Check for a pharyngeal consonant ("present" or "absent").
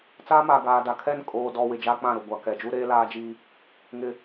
absent